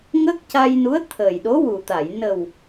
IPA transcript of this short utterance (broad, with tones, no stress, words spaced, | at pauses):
ŋə˦˥k̚ca˧jnu˧˥ə̯ t̪ʰə˨˩j ɗo˧˥wu˨˩t̪a˨˩˨j nə˨˩w